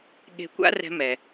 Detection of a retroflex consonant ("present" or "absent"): absent